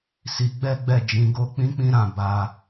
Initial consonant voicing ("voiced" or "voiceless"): voiceless